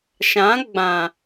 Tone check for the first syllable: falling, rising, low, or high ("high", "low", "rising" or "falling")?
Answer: rising